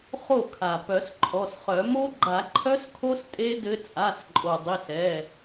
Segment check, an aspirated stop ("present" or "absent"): present